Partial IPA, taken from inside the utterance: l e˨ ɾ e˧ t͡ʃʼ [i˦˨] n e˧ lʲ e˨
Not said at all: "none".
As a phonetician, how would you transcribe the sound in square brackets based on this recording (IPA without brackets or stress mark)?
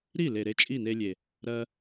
i˦˨